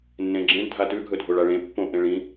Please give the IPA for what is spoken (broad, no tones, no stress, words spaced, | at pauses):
nːẽɡ͡ǁẽɖ dʱatʉ ɡʱɵdʱoɭaɭẽ pːõʔ ẽɭĩ